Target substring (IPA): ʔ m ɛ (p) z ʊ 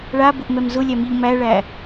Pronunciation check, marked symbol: incorrect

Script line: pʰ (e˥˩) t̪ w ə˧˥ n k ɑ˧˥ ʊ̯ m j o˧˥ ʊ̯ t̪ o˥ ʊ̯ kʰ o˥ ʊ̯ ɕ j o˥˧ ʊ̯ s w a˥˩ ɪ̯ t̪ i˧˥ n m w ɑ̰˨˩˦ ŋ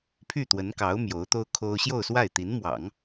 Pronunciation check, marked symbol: incorrect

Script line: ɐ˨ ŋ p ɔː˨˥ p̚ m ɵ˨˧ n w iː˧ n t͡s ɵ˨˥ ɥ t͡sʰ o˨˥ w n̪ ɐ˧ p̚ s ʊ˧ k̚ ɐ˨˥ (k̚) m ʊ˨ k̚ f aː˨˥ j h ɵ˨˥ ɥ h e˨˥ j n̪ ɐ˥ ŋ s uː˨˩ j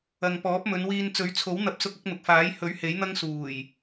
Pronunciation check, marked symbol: correct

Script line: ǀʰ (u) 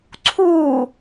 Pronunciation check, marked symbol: correct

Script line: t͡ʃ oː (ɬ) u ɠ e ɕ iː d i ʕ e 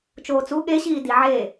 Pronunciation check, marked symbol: incorrect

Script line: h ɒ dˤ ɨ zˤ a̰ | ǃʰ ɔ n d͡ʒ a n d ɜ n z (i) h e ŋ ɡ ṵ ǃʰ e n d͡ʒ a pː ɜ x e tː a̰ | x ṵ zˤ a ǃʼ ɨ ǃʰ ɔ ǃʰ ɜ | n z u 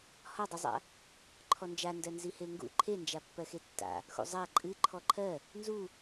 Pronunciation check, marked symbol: correct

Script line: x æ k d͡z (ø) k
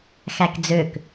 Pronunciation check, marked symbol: correct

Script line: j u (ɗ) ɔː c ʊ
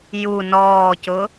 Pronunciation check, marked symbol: incorrect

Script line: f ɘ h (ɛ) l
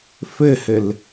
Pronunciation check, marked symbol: incorrect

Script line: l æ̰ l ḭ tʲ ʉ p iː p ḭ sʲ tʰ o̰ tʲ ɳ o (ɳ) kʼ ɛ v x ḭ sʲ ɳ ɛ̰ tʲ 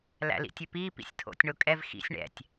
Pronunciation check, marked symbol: incorrect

